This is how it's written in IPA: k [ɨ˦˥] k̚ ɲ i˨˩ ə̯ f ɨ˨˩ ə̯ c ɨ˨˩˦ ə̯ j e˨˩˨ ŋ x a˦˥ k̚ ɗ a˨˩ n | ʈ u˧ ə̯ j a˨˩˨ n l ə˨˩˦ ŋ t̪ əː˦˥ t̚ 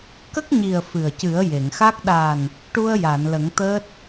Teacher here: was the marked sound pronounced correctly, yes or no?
no